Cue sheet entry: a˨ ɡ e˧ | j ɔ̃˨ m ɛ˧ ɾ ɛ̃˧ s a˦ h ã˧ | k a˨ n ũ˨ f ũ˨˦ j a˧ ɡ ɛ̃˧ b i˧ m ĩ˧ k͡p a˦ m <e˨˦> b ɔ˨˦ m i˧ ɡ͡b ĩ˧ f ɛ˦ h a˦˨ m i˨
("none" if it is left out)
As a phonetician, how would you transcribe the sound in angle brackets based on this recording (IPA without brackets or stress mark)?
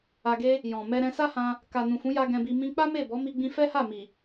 e˦˨